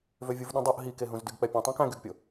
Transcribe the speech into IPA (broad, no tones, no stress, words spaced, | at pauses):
vøvʲuvɗũdˤuʔ ɦikeɦũz dyɡk͡pɛpʲũ tˤæ̃kæ̃ɡyɡpʲo